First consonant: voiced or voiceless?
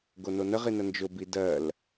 voiced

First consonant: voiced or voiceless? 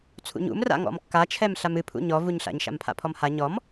voiceless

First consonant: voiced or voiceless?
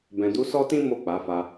voiced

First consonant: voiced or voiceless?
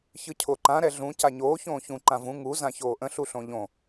voiceless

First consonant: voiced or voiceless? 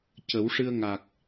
voiceless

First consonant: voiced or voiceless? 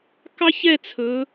voiceless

